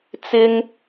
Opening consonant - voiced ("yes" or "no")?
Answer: no